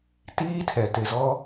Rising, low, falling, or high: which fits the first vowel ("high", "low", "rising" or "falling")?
high